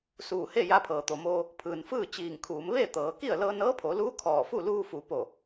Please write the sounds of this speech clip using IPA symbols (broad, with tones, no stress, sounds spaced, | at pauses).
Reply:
s uː˧˩ h e˥˨ j a˧ pʰ ɤː˩ t̪ o˩ m oː˧ | pʰ ɯː˩ n f ɯː˥˨ t͡ɕ iː˧˩ ŋ kʰ uː˩˧ m ʋ eː˥˨ t̪ ɤː˩˧ k i˥˨ ə̯ l ɤː˧ n ɤː˧˥ pʰ o˩˧ l uː˧˥ kʰ ɔː˧˩ f u˥˨ l uː˧ f u˩˧ p o˧˩